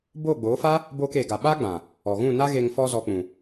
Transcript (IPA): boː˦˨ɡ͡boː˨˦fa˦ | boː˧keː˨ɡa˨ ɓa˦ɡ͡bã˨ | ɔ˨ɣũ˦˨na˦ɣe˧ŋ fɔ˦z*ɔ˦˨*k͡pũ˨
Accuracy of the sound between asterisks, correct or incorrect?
incorrect